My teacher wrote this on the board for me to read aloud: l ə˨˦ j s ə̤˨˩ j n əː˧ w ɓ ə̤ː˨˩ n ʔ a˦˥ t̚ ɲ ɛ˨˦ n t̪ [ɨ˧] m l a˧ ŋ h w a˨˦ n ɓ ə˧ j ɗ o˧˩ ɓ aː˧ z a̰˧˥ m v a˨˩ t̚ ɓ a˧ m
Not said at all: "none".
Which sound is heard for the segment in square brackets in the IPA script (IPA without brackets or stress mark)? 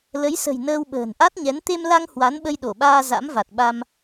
e˧